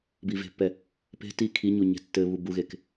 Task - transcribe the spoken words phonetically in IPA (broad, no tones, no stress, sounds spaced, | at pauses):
b i v e̤ pː ɛ | p e̤ t i kʰ i ɲ u ɲ ɛ̤ tː ɘ β u b u ɣ e k